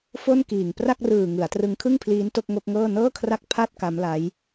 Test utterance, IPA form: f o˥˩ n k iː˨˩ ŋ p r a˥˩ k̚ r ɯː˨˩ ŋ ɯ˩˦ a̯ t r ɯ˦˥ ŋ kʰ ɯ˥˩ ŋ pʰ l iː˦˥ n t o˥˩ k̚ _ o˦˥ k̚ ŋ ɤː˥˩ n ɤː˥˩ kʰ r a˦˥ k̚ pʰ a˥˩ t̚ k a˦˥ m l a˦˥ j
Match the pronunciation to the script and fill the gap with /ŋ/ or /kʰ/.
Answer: ŋ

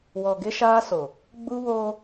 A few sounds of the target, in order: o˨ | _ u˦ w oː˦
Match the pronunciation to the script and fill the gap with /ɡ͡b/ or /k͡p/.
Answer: ɡ͡b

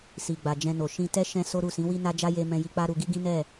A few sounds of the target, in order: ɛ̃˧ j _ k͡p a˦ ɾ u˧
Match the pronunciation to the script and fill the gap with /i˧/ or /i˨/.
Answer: i˧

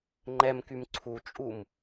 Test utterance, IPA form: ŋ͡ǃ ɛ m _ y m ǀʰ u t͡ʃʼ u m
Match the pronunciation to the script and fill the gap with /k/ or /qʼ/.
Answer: k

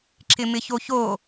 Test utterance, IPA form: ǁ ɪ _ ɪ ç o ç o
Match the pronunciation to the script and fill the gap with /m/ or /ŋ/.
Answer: m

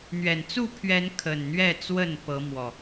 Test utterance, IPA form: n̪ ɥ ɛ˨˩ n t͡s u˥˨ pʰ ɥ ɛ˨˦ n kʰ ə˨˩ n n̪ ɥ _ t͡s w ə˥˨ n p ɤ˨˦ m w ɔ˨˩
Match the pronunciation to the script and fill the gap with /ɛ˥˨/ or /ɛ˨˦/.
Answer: ɛ˥˨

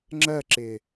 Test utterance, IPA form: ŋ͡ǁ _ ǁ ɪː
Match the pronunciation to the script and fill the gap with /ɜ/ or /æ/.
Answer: ɜ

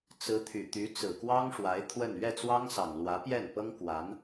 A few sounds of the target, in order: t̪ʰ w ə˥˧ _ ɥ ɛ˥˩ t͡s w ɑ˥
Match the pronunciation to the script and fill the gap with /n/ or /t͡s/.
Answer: n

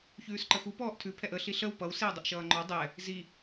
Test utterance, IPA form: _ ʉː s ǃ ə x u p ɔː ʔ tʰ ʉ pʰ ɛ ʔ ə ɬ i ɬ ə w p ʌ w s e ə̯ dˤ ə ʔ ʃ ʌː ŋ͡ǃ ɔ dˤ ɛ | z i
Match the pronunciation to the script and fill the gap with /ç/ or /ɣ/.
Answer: ç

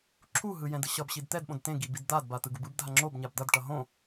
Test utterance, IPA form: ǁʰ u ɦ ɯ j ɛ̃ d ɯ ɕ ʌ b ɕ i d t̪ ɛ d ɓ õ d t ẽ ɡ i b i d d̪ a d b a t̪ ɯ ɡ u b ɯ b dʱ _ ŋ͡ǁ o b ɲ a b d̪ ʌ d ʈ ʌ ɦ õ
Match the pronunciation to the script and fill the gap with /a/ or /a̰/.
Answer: a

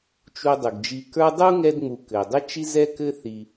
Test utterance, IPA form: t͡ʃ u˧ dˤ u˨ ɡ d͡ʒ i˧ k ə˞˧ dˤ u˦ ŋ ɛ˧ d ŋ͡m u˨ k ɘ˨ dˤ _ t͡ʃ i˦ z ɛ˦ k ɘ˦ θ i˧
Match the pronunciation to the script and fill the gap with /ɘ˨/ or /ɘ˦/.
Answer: ɘ˦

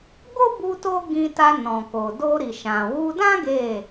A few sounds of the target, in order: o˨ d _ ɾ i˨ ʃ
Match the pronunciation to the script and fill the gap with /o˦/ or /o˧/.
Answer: o˧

